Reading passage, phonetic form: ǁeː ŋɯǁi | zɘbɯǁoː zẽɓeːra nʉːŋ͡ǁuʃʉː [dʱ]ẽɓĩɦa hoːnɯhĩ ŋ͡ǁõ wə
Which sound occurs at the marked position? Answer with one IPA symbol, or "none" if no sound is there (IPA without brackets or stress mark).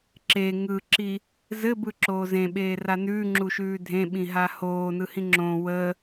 dʱ